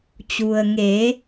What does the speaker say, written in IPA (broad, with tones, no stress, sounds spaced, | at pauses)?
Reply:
t͡ɕ u˩ ə̯ ŋ eː˩˧